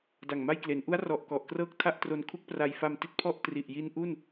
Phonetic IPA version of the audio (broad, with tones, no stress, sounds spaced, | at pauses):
d a˨˩ ŋ m a˥˩ j k l e˩˦ n ʔ u˦˥ a̯ r ɔ˨˩ ʔ k ɔ˨˩ ʔ k r ɤː˥˩ k̚ tʰ a˥˩ ʔ t r o˧ n kʰ u˥˩ k̚ p r a˧ j f a˧ m t i˦˥ t̚ pʰ ɔ˥˩ ʔ t r i˨˩ ʔ j i˦˥ n ʔ u˥˩ n